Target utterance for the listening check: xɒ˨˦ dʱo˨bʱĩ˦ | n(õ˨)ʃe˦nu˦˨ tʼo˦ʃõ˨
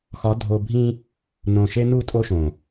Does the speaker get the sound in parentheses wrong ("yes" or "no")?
no